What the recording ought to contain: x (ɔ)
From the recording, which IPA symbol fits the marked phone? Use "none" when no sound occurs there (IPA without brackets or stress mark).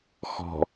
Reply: ɔ̤